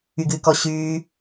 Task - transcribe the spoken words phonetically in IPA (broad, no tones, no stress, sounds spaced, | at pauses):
y ɡ ɨː k ɔ ɕ yː